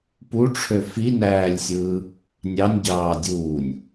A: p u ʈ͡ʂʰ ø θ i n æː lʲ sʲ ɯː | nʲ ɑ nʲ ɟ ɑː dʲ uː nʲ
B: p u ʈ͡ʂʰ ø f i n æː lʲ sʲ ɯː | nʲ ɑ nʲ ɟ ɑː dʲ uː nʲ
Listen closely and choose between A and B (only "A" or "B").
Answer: B